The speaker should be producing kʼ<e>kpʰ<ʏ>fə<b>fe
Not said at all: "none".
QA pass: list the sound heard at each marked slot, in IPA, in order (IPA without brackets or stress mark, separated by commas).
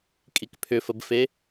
i, ʏ, b